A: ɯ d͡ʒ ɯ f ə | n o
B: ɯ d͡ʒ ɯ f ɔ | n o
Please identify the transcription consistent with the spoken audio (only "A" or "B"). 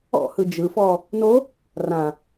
B